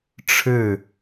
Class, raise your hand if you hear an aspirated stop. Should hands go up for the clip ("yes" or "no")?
yes